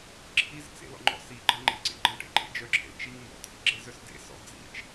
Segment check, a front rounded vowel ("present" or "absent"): present